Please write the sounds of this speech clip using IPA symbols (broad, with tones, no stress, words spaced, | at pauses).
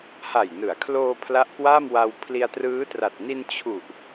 ha˨˩jnɯ˩˦a̯kʰloː˧ pʰla˦˥ʔkwa˥˩mwa˧w pʰli˧a̯ trɯː˦˥tra˨˩t̚ ni˧n t͡ɕʰu˨˩ʔ